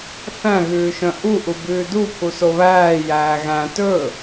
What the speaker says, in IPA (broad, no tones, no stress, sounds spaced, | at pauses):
θ æ̃ ɣ ʉː ʃ œ̃ ʔ u ʔ u b ʉː d u pʰ u s o β æː j æː ɣ æ̃ t ɵ